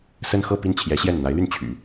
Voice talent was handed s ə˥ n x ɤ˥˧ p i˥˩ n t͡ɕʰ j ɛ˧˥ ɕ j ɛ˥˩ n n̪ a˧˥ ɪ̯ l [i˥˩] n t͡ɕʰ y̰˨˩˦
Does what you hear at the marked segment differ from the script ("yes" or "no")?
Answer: yes